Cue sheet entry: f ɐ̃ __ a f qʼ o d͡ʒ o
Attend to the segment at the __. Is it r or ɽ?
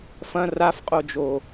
r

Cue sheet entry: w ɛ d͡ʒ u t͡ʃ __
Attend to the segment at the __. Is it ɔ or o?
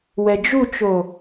o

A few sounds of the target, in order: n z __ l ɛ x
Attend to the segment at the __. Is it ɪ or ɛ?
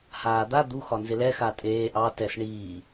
ɪ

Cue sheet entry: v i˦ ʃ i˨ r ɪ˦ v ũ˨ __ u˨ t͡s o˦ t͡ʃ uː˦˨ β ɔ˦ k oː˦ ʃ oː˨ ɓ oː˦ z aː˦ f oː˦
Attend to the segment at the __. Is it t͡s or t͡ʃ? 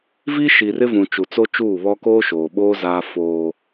t͡ʃ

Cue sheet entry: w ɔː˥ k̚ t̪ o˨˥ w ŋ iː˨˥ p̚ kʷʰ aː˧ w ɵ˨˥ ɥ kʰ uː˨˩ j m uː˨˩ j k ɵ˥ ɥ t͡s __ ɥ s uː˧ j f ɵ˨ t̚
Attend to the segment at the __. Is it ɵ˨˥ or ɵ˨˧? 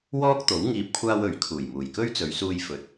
ɵ˨˧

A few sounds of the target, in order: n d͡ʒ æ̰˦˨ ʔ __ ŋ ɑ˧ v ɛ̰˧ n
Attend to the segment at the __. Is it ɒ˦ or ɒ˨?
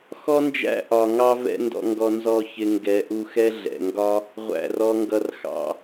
ɒ˨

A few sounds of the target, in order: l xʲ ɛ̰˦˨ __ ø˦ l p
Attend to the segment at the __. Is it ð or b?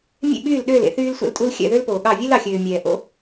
ð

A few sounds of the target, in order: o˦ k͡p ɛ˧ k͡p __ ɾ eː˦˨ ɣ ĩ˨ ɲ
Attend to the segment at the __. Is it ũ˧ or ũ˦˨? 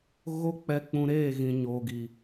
ũ˧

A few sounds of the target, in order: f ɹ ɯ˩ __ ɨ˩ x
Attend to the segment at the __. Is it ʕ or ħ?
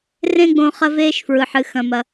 ħ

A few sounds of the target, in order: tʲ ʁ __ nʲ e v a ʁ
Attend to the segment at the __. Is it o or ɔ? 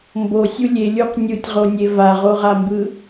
o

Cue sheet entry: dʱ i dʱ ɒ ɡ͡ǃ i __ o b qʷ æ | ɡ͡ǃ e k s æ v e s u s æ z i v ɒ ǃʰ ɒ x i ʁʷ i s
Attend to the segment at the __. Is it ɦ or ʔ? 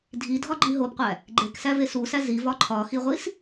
ɦ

